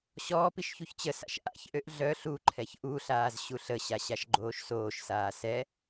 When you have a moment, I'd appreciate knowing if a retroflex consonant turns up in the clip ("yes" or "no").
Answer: no